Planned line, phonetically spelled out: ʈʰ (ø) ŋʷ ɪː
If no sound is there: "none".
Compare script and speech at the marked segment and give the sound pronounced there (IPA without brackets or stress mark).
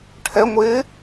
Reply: ɛ